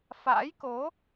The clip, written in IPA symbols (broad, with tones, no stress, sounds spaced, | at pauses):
f a̰ː˧˥ j k o˨˦